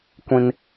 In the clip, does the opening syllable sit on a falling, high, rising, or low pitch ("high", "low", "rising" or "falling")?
high